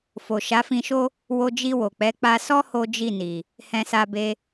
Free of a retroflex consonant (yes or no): yes